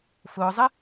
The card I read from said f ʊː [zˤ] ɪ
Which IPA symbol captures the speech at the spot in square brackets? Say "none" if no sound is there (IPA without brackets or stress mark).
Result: zˤ